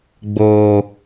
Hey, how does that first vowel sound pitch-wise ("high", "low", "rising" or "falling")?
low